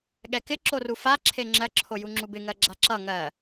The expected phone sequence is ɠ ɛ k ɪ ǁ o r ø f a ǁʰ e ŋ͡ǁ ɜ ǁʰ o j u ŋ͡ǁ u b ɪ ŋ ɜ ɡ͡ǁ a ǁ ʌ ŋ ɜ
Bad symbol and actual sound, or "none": ø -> u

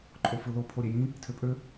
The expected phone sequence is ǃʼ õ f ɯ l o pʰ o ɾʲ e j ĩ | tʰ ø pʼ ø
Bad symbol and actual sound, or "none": õ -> o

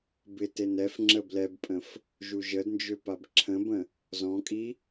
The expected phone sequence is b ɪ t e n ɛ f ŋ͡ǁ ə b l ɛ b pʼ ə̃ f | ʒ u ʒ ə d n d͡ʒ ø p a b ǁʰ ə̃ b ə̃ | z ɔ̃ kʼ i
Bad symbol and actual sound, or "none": none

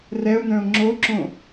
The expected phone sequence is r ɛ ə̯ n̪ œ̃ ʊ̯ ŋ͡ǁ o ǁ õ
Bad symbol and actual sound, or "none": ə̯ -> ʊ̯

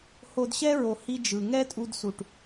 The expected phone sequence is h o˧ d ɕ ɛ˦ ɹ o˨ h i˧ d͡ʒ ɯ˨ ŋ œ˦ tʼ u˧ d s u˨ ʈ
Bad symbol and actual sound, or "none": œ˦ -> ɛ˦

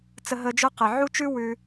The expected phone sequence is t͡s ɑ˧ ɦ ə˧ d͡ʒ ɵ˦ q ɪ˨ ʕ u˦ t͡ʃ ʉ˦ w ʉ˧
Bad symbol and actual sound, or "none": ɑ˧ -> ə˧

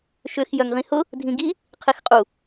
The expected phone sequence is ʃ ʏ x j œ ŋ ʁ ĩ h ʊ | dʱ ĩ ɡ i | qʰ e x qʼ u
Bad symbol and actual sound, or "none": none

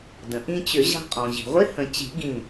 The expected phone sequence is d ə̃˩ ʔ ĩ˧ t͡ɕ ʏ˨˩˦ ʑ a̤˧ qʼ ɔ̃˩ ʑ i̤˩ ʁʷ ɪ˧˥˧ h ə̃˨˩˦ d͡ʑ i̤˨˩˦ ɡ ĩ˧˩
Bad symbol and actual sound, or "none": d͡ʑ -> t͡ɕ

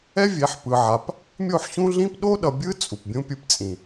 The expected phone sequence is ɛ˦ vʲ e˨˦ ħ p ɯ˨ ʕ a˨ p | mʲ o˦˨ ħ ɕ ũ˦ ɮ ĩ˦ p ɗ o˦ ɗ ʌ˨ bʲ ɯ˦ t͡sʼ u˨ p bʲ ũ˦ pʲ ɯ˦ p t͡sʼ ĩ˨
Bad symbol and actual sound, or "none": none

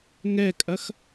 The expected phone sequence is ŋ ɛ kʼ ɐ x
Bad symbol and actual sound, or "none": none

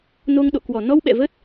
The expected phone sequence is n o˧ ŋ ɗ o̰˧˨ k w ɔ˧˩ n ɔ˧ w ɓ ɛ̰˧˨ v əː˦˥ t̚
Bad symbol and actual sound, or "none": none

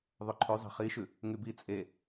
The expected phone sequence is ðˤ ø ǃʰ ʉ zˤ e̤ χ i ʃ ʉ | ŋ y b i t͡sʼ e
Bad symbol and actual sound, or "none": none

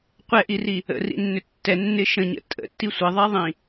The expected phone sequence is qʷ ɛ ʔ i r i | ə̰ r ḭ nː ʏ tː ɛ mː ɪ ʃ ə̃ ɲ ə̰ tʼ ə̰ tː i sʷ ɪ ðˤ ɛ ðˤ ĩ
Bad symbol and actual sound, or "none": mː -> nː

